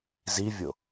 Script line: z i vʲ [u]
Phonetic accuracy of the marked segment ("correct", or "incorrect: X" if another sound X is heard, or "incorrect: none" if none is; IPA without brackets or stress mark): incorrect: o